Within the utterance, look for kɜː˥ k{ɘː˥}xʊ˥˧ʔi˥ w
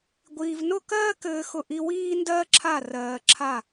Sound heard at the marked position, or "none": ɘː˥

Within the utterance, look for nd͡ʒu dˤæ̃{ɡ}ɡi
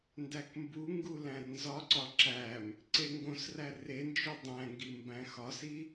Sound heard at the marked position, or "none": ŋ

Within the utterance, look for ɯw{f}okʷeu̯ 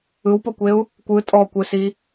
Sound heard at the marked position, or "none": p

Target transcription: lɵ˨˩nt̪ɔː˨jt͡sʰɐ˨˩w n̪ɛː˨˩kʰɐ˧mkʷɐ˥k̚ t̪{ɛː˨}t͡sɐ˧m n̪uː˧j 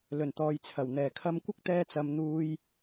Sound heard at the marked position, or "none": ɛː˥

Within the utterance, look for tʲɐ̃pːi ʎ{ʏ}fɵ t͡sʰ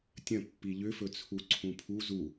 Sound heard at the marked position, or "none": ʏ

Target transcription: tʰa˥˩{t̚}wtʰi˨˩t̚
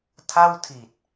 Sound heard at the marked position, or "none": none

